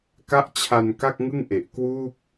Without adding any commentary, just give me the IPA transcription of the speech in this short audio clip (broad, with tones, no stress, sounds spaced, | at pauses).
k a˦˥ ʔ t͡ɕʰ a˧ n k a˥˩ k̚ ŋ ɯ˥˩ ŋ ʔ e˨˩ ʔ k w uː˥˩ k̚